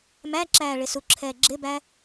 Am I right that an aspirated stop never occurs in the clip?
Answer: no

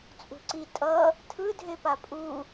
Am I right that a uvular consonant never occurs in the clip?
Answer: yes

